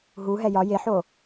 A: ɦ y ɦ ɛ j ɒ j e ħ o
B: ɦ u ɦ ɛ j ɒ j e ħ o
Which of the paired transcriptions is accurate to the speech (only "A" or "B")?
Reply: B